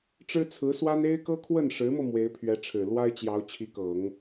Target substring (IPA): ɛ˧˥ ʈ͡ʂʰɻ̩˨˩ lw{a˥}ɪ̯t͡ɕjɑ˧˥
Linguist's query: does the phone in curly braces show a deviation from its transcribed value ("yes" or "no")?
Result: no